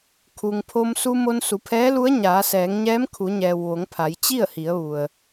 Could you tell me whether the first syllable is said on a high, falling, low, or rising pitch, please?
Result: low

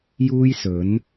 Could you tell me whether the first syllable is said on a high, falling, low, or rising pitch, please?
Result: high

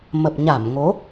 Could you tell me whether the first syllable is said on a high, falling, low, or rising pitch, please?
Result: low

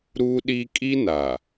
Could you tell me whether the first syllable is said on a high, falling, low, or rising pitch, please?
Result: high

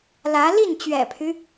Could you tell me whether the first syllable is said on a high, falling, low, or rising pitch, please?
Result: rising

